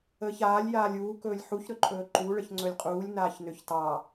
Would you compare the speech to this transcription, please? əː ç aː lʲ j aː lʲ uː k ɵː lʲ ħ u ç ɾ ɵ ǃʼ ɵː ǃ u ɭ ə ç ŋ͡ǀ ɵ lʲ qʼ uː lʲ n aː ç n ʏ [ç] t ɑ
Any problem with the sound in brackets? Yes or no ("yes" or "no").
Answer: no